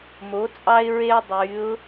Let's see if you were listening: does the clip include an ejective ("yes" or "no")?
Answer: yes